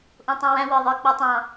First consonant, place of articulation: glottal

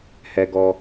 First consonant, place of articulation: glottal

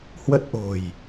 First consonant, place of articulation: glottal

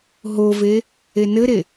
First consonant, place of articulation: glottal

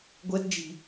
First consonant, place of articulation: velar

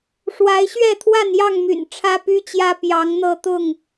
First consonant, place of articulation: retroflex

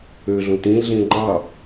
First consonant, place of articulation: alveolar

